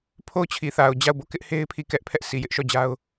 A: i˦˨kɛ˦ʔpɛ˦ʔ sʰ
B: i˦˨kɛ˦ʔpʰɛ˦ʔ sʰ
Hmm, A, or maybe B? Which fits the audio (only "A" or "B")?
B